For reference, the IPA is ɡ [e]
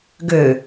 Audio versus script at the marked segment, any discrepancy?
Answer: yes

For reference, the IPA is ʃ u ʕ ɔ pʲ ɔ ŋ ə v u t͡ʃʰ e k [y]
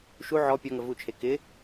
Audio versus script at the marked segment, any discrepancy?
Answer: yes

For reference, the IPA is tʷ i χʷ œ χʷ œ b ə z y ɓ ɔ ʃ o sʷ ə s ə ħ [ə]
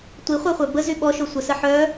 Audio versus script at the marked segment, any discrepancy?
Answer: yes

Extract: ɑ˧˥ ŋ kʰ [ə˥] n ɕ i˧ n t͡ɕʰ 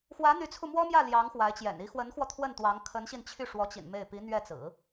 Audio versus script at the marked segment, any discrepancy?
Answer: yes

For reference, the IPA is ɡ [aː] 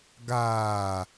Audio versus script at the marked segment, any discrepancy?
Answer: no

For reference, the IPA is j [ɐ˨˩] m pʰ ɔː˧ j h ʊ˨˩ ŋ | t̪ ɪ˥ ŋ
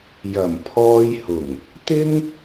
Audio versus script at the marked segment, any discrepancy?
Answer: no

